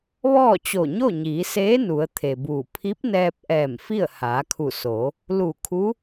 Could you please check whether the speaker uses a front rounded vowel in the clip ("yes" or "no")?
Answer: no